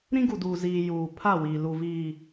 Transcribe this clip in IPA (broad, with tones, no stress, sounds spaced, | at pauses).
ɾ ĩ˦ ɡ u˨ d uː˨ z iː˨ j uː˨ pʰ a˦˨ w iː˨ l u˨ v iː˨